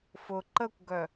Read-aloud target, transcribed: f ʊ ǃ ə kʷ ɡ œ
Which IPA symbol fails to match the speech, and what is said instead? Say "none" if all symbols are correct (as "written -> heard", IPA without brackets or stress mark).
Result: none